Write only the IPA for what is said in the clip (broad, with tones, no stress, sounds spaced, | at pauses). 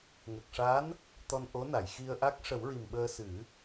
ŋ ə˨˩ k̚ ʂ a˧˥ n | t̪ ɔ˧ n ʔ o˧˥ n a˨˩˨ j x i˧ ə̯ ʔ a˦˥ k̚ ʂ ə˨˩˦ w ɹ i˨˩ m ɓ əː˧ s ɨ˨˩˦